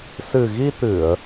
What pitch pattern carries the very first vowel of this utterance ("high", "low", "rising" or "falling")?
low